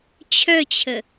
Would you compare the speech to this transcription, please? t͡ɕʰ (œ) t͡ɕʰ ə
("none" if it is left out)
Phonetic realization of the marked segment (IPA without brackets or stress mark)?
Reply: œ